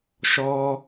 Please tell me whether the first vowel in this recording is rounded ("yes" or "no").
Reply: yes